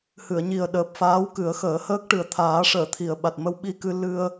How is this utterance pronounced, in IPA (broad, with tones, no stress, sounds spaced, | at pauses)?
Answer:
h ɨ˨˩˨ ə̯ ɲ i˨˩ ə̯ ɗ əː˨˩ p̚ f aː˧˥ w k ɨ˨˩˦ ə̯ x əː˨˩˦ h əː˦˥ k̚ ʈ ɨ˨˩ ə̯ t̪ʰ aː˨˩˦ ʂ əː˨˩˨ t̪ʰ i˨˩ ə̯ ɓ a˨˩ t̚ m ə˧ w ɓ i˧ k ɨ˧ l ɨ˧ ə̯